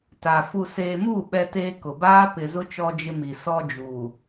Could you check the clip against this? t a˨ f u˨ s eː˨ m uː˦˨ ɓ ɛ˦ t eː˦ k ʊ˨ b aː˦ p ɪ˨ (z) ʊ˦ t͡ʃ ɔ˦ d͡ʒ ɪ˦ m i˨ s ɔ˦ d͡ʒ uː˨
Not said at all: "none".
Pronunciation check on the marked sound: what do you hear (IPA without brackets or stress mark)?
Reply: z